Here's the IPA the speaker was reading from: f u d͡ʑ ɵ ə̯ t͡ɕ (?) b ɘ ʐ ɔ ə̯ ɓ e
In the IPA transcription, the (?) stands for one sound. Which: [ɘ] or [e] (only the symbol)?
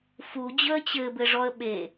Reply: ɘ